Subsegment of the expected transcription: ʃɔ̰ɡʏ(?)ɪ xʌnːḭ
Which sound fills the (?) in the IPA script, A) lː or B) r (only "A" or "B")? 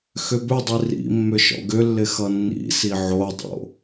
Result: A